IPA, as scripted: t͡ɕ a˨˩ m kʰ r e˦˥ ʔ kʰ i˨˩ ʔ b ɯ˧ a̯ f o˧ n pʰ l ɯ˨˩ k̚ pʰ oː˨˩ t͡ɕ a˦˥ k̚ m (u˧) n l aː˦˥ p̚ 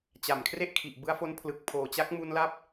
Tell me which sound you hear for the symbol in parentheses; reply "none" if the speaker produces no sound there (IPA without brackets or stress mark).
u˧